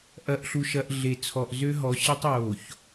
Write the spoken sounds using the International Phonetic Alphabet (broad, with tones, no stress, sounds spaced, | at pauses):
ʔ ɐ˨ ʔ ɬ u˨ ʃ ɐ˨ ʔ ɮ e˨ t͡sʰ ɔ˨ ʔ z ø˦ ɦ ɔ˨˦ ɕ ə˦ tˤ j o˨ ç